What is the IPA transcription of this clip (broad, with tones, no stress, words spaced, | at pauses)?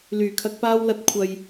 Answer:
lyː˨˩kʰɐ˧k̚paː˥w lɐ˥t̚ kʷʰɐ˨j